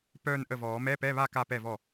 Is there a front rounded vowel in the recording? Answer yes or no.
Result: yes